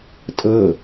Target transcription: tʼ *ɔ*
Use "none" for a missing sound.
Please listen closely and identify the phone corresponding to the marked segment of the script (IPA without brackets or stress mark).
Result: ɤ